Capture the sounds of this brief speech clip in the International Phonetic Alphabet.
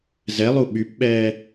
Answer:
zɛlˠu ɓypɓɛː

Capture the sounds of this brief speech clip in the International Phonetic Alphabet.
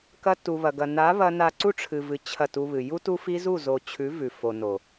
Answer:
kɐ˧tu˨βɐ˨ɡɐ˨ na˨˦βɐ˧ na˧ǀu˦ ʈ͡ʂʰɨ˨vɨ˨ t͡ɕʰɐ˦˨tu˧βɨ˨ ju˧tu˧fi˧ zu˦˨zo˨t͡ɕʰʉ˨˦ vʉ˨fo˨no˨

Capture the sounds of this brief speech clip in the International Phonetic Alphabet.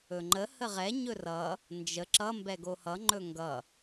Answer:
ɵŋ͡ǃə həʁɛ ɲɵrʌ | nd͡ʒə ǁʌ mbɛɡohʌ ŋ͡ǃɵŋɡʌ

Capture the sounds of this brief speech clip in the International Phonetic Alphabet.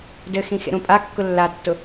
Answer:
dɘxĩ xḛɾũpʼakːʊ lːatːʊ

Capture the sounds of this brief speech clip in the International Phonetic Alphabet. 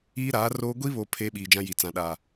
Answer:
iː˦ɾaː˨˦roː˦ ɡʷi˦βo˨ pʰe˦ ɓiː˨d͡ʒã˦ji˨ t͡sã˨ɗaː˨

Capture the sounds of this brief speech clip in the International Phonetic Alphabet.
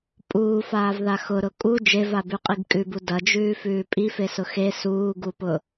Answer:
pʼuːfaːvða xʊɾʊ kʼu d͡ʒevabʉqʼiɡ kʼʉbu dɐd͡ʒʉːfʉː pʼifesʊ xe suːɡupʊ

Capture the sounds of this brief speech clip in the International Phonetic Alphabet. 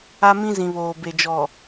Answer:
a˦mĩ˦zĩ˨βoː˨ be˨d͡ʒɔ˨

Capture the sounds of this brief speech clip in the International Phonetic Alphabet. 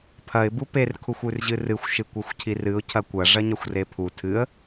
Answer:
pʰɐɪ̯ buper kʰuxʷʉrʑɨrɨxʷ ʃɨkʷɐxʷcʰirɨʊ̯ cʰɐkʷɐ ʐɐɲɐxʷrepʰu tʰɨə̯

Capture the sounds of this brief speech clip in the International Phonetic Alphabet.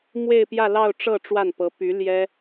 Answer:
mwe˥˧ɪ̯pjä˥˧lɑ˥˧ʊ̯ ʈ͡ʂɤ˥˧ ʈ͡ʂwa˥˩npɤ˧˥ py˧˥ ljɛ˥

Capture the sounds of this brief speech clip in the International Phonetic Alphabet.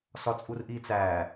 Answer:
sɒt͡sʼurʔiːt͡sæː

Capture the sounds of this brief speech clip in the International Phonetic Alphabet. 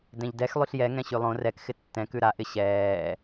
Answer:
dɛ̃ʎdɛx lˠyɬjɛ ŋɛ̃ɕylˠõ rɛk xɪtːɛ̃ kʉɾa ʔɪɕɛː

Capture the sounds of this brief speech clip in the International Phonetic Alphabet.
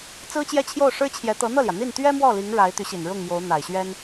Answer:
t͡sɹ̩˥t͡ɕjɛ˥˧t͡ɕʰjo˥˩ʊ̯ʂɻ̩˥ t͡ɕʰjɛ˧˥t̪ɤ˧˥n̪ɤ˥˩ljä˩ n̪i˥˩nt̪ɥɛ˥mwɔ˥˩li˧˥ŋ ɻa˧˥ɪ̯t̪y˧˥ɕi˨˩n ɻʊ˥˩ŋmjo˧˥ʊ̯ n̪a˨˩ɪ̯ɕɥɛ˥n

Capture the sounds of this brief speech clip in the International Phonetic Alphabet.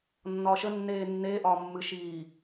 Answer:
nːɒːʃə nːeːnːeː ʔɒːmːɨ ʃiː

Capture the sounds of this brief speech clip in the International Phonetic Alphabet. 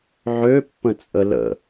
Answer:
ʕø pːə̃t͡sʼələ̰

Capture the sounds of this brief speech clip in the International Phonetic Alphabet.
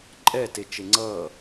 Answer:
ǃʼɛ tet͡ʃeŋ͡ǀʌː

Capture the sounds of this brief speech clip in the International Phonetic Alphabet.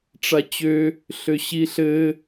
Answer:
ʈ͡ʂat͡ɕø | ɬøɕiɬɘ

